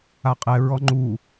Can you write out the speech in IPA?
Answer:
a qʼ ɛ ɹ ɔ ŋ͡ǃ u

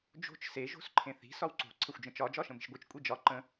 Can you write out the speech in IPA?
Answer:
d͡ʒ o̤ t͡ʃ s e ʒ o̤ s ǃʰ ẽ θ i̤ s ɒ w ǀ o̤ ǀʰ ə xʷ d͡ʒ ə̃ t͡ʃ ɒ d͡ʒ ɒ ʃ ə̃ m i̤ ʃ ɡʷ i t͡ʃ kʷʼ i d͡ʒ ɒ ǃ ə̃

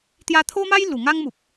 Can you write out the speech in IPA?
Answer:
t̪ j a˧ t̪ʰ o˦ m a˦ j l u˨˩ ŋ a˦ ŋ m u˨ p̚

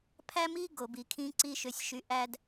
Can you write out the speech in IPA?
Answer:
pʰ æ˦ m i˦ ɡ o˨ b i˨ kʰ ĩ˧ ǀ i˦ ʃ ø˧ sʲ ʃ y˧ ʔ æ˦ d

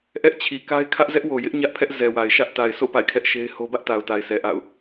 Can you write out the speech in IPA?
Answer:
ʔ ɛ˦ ʔ t͡ɕʰ i˨ k a˦ ɪ̯ kʰ ä˦ ʔ z ɛ˦ ʔ w o˨ j ɪ˦ ʔ ɲ ä˦ ʔ pʰ ɛ˦ ʔ z ɛ˨ w a˨ ɪ̯ ʃ ä˦ ʔ t a˨ ɪ̯ sʰ o̰˦˨ p a̰˦˨ ɪ̯ kʰ ɛ˦ ʔ ʃ e˦ ɪ̯ h o˦ b ä˦ ʔ t a˨ ʊ̯ t a˨ ɪ̯ s ɛ˨ ʔ a̰˦˨ ʊ̯

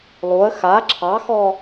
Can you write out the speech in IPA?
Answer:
lˠ u ə̯ x a ǁʰ ɑ x ɔ

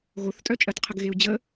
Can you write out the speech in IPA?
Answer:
ɣ o θ tʼ œ t͡ʃʼ ɜ t qʰ ə ɡ ɣ e u̯ d͡ʑ ə

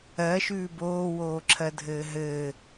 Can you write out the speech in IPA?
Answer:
ɜ ʃ ʉː b oː w oː ǁʰ ɜ dʱ ɘː ɦ ɘː

